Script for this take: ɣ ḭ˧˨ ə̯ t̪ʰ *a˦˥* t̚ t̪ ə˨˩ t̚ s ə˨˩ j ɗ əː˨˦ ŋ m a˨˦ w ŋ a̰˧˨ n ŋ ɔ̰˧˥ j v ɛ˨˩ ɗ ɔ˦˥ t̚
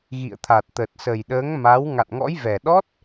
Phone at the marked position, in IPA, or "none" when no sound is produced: a˨˩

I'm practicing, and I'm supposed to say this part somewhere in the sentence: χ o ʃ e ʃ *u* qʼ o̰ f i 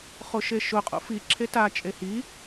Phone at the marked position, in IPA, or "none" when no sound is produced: ʊ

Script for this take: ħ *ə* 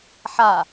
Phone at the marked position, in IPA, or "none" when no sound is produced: a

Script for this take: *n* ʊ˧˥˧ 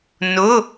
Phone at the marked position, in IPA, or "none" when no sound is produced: n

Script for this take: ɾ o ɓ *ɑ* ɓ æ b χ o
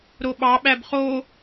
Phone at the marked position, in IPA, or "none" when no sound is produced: ɑ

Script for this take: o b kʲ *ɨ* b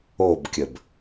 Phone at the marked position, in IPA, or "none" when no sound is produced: ə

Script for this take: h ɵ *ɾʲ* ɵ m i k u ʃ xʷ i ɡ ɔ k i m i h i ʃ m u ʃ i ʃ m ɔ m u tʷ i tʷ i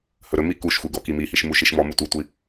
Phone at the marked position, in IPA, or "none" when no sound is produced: ɾ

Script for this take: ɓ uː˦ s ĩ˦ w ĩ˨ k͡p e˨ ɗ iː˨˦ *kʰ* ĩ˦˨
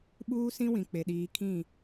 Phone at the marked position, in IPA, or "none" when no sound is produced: kʰ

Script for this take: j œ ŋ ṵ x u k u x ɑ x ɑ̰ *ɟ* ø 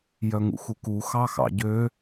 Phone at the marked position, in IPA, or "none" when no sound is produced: ɟ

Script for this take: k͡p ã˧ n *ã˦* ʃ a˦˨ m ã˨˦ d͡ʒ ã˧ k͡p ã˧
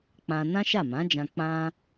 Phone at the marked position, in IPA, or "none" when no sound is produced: ã˦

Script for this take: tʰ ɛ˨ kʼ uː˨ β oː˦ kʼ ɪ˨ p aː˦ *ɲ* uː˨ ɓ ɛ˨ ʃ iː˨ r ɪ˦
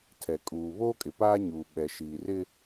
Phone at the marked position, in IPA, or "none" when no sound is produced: ɲ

